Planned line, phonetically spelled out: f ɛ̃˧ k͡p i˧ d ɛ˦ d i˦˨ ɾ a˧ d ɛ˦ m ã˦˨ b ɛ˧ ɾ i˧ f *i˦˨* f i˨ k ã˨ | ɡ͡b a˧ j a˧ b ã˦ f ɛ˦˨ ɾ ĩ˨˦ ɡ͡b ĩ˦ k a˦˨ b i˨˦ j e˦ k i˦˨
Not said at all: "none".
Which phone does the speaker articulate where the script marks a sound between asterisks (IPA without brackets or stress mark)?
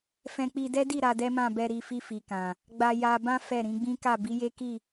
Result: i˧